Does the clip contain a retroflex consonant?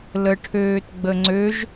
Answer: yes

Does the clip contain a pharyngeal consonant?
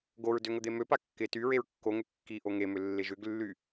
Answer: no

